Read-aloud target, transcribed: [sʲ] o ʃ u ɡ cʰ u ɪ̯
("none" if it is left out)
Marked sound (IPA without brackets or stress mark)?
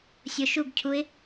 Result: sʲ